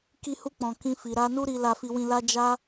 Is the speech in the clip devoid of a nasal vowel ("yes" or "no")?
no